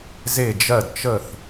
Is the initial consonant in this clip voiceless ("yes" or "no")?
no